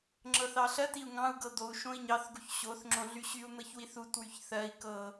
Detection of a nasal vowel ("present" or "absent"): present